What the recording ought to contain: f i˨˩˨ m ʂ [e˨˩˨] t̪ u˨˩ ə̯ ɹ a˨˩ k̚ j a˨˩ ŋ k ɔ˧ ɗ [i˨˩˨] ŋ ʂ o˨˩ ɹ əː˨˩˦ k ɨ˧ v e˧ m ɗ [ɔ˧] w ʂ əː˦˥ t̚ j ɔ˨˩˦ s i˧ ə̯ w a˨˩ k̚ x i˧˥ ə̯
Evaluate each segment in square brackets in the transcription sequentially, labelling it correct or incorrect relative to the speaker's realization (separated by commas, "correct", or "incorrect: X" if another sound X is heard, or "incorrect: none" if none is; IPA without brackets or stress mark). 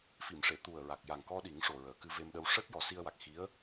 correct, incorrect: i˨˩˦, incorrect: ə˧